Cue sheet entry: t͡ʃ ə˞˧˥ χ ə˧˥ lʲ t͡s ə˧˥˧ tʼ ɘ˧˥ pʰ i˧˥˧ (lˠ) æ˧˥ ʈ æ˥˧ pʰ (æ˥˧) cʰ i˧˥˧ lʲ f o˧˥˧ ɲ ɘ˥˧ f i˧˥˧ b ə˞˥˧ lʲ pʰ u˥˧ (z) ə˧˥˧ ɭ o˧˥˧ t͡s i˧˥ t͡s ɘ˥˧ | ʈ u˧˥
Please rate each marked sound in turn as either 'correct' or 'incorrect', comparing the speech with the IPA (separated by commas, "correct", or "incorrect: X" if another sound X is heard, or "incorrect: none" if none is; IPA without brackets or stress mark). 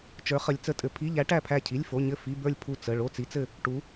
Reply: incorrect: ʎ, correct, incorrect: t͡s